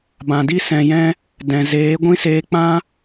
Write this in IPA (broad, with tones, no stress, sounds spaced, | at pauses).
b ã˨ d i˦ s ɛ̃˨ j ɛ̃˧ | d ɛ̃˨ z eː˨˦ ɡʷ ĩ˦ s eː˧ k͡p ã˦